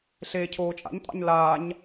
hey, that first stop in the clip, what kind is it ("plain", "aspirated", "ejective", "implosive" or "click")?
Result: aspirated